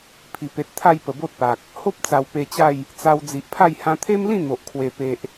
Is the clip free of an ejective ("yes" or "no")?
yes